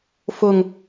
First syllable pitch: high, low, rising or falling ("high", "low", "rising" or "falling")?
low